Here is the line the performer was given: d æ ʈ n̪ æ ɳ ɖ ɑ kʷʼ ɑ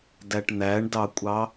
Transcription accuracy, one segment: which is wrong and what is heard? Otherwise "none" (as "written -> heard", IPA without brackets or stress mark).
ɖ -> d